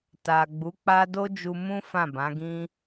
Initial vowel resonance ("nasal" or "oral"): oral